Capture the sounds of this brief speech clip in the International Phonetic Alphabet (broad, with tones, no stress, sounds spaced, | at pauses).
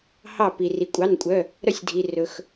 h ɑ˧˩ p i˩ r i˩ kʷʼ ɑ˩˧˩ n kʷʼ œ˩˧˩ | ɾ œ˧˩ sʲ dʱ i˩ r ɵ˩ x